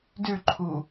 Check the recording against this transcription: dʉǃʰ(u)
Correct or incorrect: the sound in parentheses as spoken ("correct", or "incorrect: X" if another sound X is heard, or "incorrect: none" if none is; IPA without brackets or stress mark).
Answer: correct